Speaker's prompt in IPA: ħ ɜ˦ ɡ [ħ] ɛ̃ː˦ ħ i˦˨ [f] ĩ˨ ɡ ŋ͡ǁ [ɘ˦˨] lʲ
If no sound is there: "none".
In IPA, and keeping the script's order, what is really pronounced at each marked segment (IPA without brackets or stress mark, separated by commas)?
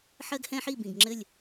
h, b, ɘ˦˨